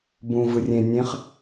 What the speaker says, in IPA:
bũ vɯrʲẽ nʲẽχ

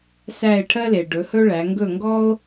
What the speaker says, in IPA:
sæ˦˨e̯ʈʰɜ˥le˩ ɖɵ˩˧hɵ˥ɭæ˩˧ ŋɡɵ˦˨ŋɡɔ˥o̯

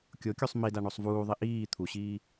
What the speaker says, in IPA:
kʲokʲusˤ mida ɳosˤvuːðˤi ʔiː t̪ʰuɕiː

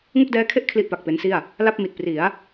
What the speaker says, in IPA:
ŋu˥˩k̚dɛː˦˥kʰe˥˩ʔ kʰli˥˩ʔpa˨˩k̚pe˦˥nsi˥˩a̯ | la˥˩p̚mi˨˩t̚ pri˩˦a̯

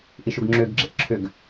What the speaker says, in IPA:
ʔiʃuɡŋ͡ǁʏːɡ ɡ͡ǁeʔǁʰʏɡ

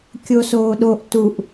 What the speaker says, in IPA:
kʲosoːɗoʔ tuʔ

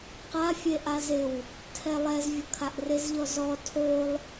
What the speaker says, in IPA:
qa fʲeʔazɪw | tʰɛlˠɛzvʲʊ kʰaʔrɪzʎɔ zɔ tʰolˠ

